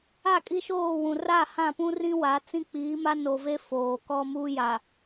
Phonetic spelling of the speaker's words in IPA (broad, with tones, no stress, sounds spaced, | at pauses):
a˦˨ kʼ i˦ ʃ oː˦˨ w ũ˨ r a˦˨ h ã˦˨ p ũ˦ r ĩ˦ w a˨˦ t͡s ĩ˦ k͡p iː˨˦ m a˦ n o˨ v e˦ f oː˨ k ɔ˦ m u˦ j a˨